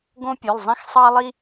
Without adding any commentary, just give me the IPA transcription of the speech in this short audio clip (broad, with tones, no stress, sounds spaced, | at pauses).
ɡ õ˦ pʲ ø˩˧˩ lˠ zˤ ĩ˦ x sˤ ɑ˦ lˠ i˦